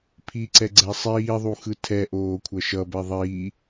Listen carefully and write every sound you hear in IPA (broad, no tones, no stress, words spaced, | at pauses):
pʰiǀɛɡ͡ǀɛ sˤiːðˤuxɯ tʰɛʔoːkʷʰʌ ʃʌbɛ ðˤiː